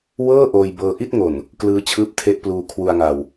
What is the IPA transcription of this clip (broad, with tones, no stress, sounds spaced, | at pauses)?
w ɤː˥˩ ʔ oː˧ j b ɤː˧ ʔ i˥˩ t̚ ŋ o˨˩ n | k l ɯː˦˥ t͡ɕʰ ɯː˦˥ p̚ tʰ e˦˥ ʔ p l uː˧ kʰ w u˧ a̯ ŋ a˧ w